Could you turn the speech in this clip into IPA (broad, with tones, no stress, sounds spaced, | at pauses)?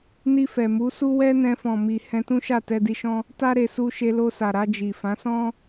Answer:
n i˧ f ɛ˨ m u˨˦ s u˦ w ɛ˦ n ɛ̃˧ f ɔ̃˨ m i˨ h ɛ̃˧ t ũ˦ ʃ a˦˨ t ɛ˧ d i˧ ʃ ɔ̃˦ | t a˦ ɾ e˧ s u˧ ʃ e˧ l o˧ s a˨ ɾ a˧ d͡ʒ i˨ f ã˨˦ s ɔ̃˦